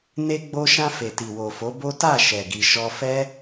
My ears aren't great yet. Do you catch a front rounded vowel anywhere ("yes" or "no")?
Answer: no